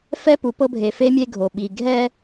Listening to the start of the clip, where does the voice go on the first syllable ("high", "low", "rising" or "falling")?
high